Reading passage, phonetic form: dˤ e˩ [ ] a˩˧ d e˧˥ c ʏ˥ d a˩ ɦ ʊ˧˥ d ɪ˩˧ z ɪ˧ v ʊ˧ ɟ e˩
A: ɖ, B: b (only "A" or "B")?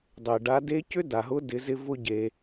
A